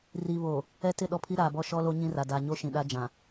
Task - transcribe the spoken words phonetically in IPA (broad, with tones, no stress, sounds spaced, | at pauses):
r i˨ β oː˨ | ɛ˦ t ɪ˦˨ ɗ ɔ˦ pʰ i˦ ɾ aː˨ b ɔ˦ ʃ ɔ˦ l o˦ ɲ ĩ˦ r a˨ d a˨ ɲ o˦ ʃ ĩ˨ ɗ a˦ d͡ʒ ã˨